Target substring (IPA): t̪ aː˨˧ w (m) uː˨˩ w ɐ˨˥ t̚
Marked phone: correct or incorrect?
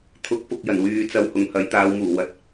correct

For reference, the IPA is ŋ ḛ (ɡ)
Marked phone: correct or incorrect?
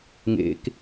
incorrect: k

